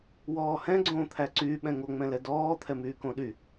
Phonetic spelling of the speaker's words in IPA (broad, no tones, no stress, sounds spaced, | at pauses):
w ɔː h ɛ̃ ɡ͡ǀ õː t̪ʰ æ ǀ y ɓ ɛ̃ ŋ o ŋ͡m ɛ̃ l ɛ d ɔː t̪ʰ ɛ m yː k õ ɗ y